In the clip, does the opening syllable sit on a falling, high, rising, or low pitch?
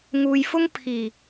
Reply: low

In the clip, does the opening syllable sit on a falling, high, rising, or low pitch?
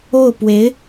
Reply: falling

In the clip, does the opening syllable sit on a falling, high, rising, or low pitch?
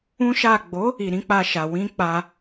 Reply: high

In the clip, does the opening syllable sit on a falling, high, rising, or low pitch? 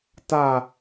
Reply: low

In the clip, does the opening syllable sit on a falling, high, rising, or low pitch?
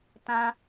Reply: high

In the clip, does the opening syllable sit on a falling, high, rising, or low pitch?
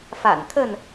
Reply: low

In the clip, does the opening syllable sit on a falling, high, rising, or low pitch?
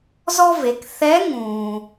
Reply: high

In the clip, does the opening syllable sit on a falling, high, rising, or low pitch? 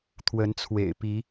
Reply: rising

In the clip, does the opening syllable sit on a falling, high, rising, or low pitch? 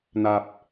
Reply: low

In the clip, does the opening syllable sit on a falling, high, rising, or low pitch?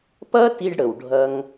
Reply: high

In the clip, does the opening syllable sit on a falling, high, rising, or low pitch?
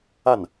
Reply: falling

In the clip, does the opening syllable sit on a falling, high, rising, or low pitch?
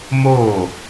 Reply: falling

